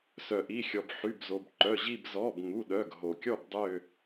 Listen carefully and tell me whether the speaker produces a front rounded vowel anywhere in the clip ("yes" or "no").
yes